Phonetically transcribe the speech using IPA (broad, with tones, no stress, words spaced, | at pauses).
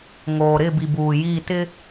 ŋoː˨ɾɪ˦˨bi˨ buː˨ji˦˨ tɪ˦